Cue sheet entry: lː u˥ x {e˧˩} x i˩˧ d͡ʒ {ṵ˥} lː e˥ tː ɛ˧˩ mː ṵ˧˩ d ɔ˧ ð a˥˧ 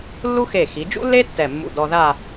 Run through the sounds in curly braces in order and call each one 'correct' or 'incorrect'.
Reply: correct, correct

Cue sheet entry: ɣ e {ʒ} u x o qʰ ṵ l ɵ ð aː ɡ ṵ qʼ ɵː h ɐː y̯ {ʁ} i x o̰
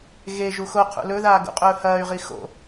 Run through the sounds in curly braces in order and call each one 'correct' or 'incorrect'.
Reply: correct, correct

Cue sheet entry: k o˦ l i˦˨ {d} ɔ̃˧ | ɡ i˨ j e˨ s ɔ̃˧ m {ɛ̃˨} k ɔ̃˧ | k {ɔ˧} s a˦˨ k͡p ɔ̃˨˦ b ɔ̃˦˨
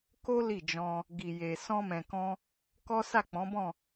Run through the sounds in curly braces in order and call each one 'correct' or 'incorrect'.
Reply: incorrect, correct, incorrect

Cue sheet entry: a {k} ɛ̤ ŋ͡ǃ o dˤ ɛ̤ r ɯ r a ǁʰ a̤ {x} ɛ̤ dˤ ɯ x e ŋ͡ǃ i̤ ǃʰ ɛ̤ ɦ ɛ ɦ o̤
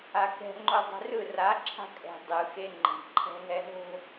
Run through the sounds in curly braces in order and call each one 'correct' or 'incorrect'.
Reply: correct, incorrect

